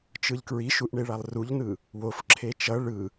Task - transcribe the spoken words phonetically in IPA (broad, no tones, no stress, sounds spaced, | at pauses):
t͡ʃ ɯ ʎ k ɹ i ʃ u ʔ ɳ e ɭ a lˠ r u ʎ n ɯ | w o f ǁʰ e t͡ʃ ʌ ɭ ɯ